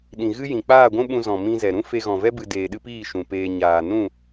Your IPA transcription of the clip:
ɗ ĩ˨ ɣ ɨ˦ j ĩ˨ k͡p aː˦˨ ɡʷ ũ˦ ɓ ũ˧ z ɔ̃˨ m ĩ˧ z ɛ˨ ɾ ũ˦ f e˧ ɣ ɔ̃˨ v ɛ˦ b ɨ˧ d eː˧ ɗ ɨ˦ p iː˦˨ ʃ ũ˨ p eː˧ ɲ aː˨ n ũ˦˨

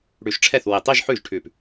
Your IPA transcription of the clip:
ɽ ʉ˧˩ ʃ ʈ͡ʂʰ ɛ˥˩ θ w i˧˩ tˤ i˥˧ ʒ ħ ʉ˥˩ ʒ ʈʰ ʉ˥˩ p

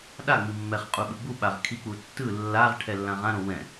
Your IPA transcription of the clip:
ɗ a ŋ͡m i mː ɛ χ qʼ u ɓ ɯ ɡ͡b u ɓ a ʁ kʰ i k͡p u tː ɯ lː a ʁ ʈʰ ɛ lː ã ʁ ã ɾ õ w ɛ̃

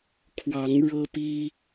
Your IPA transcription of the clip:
kʰ w ɑ˨˦ ŋ ɻ ɤ˦ p i˦

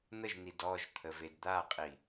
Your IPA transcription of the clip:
n̪ ə ʒ n̪ i d ɔ ʒ t̪ʰ ə v e d d̪ a qʼ i

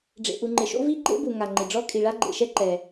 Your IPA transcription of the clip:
ɖ͡ʐ ḛ˩ ʔ u˩ ŋ͡ǃ ɪ˩ ʃ o̰˥ v i˥ ɡ͡ǃ ḛ˥ b u˩ ŋ a˩ ŋ͡ǃ ɪ˩ ɖ͡ʐ ɔ˥ kʼ i˩ ɭ a˥ ɡ͡ǃ ḛ˩ ʃ ɛ˥ ǃ ɛ˩

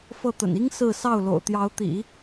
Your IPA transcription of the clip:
f ɤ˥˩ t̪ ə̰˨˩ n i˥ ŋ s ɹ̩˥˧ s ɑ˥˩ ʊ̯ l o̰˨˩ ʊ̯ t̪ j ɑ˧˥ ʊ̯ t̪ ḭ˨˩˦

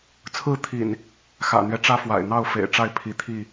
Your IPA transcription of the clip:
t͡sʰ ɹ̩˥˨ t̪ʰ ḭ˨˩ n | x ä̰˨˩ n̪ ɥ ɛ˦ ʈ͡ʂ ä˦ f w a̰˨˩ ɪ̯ n̪ ɑ˥˨ ʊ̯ f ḛ˨˩ ɪ̯ ʈ͡ʂ a˥˨ ɪ̯ pʰ i˨˦ t̪ʰ i˥˨

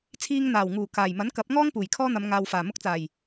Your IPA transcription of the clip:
t͡sʰ iː˧ ŋ n̪ aː˨˩ w ŋ uː˨˩ k aː˨˩ j m ɐ˨˥ n k ɐ˨˥ p̚ ŋ ɔː˥ ŋ p uː˨˩ j kʰ ɔː˥ n̪ ɐ˨˧ m ŋ aː˨ w f aː˨˩ m ʊ˥ k̚ t͡s aː˨˩ j

